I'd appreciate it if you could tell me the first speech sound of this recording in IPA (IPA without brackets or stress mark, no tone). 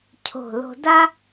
cʰ